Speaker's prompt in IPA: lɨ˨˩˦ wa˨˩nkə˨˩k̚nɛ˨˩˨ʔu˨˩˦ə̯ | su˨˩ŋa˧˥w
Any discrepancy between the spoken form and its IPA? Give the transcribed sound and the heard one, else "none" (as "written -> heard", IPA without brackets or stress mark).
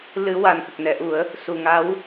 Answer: none